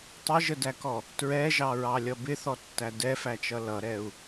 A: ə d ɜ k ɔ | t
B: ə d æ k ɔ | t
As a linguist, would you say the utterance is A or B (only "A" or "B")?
B